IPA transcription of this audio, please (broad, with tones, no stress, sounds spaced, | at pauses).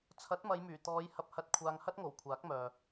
t͡sʰ ɐ˨˥ t̚ m ɐ˨˧ j m yː˨˩ t̪ ɔː˨˧ j h ɐ˨ p̚ h ɐ˨˥ t̚ kʷʰ aː˨ ŋ h ɐ˥ t̚ ŋ o˨˩ w kʷʰ aː˨˥ k̚ m œː˨